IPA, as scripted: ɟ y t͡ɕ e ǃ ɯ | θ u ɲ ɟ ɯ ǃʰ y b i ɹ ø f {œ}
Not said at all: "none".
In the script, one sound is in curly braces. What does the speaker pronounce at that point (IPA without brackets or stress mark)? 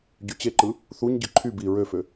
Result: ø